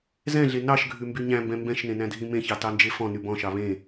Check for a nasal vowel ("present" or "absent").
present